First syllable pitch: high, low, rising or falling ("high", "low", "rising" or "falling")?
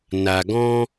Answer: low